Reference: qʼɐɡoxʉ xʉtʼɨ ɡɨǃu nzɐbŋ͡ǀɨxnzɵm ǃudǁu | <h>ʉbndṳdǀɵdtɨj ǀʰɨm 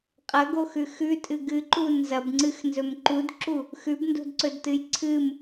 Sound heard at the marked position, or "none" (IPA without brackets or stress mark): x